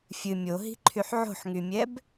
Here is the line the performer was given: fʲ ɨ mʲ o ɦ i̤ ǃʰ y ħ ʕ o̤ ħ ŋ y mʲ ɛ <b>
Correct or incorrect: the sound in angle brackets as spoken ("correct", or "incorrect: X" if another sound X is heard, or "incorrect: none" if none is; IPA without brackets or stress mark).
correct